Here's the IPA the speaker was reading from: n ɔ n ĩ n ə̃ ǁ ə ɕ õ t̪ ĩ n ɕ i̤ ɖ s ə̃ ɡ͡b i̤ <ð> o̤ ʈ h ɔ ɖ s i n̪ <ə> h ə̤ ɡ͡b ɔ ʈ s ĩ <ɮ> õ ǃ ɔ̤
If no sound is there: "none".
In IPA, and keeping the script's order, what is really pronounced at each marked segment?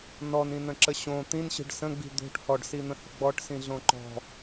d̪, ə̃, ɮ

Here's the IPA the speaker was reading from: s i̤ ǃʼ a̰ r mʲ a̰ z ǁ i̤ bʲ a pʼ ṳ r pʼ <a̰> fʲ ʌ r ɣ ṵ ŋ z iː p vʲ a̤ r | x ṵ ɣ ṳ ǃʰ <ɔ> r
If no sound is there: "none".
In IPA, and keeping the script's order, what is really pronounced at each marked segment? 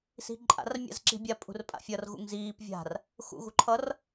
a̰, ʌ

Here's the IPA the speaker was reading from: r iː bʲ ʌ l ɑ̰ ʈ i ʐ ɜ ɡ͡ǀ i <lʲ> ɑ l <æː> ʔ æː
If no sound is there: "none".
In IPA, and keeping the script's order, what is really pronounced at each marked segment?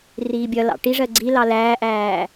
l, æː

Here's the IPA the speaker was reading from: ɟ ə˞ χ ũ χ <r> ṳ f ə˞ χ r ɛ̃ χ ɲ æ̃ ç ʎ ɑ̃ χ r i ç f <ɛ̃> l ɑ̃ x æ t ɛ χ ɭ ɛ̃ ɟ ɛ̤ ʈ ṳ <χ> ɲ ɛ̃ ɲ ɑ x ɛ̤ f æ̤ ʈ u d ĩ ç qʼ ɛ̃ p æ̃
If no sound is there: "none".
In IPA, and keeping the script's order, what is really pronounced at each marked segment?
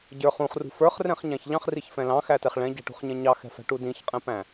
r, ɛ̃, χ

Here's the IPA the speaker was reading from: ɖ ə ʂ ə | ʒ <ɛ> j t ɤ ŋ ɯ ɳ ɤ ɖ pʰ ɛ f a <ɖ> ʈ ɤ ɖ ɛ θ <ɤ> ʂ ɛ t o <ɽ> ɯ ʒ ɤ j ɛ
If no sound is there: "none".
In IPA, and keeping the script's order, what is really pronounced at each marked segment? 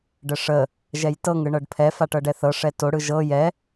ɛ, none, ɤ, ɽ

